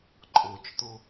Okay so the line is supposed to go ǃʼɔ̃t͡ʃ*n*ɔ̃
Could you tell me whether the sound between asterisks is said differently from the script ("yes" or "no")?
yes